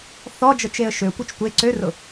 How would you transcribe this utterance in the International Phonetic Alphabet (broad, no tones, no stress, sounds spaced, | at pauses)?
θ ɔ d͡ʒ ɤ t͡ʃ e ə̯ ʃ ø kʷ œ t͡ʃ tʷ e ǀ ø r ʊ